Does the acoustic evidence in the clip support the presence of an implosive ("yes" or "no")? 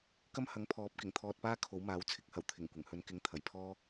no